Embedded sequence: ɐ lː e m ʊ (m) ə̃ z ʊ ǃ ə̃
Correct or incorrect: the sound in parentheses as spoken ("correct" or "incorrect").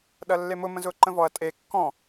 correct